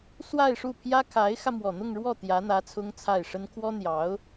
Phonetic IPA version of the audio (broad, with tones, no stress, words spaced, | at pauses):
swa˥˧ɪ̯ʂu˥˩pʰjä˥ kʰa˧˥ɪ̯xä˧ mwɔ˨˩n̪ʊ˥˧ŋɻwɔ˥˩ t̪jä˧˥n̪ä˧˥ t͡sʰʊ˥ŋt͡sʰa˥˩ɪ̯ʂə˥n kʰwɔ˥n̪jɑ˧˥ʊ̯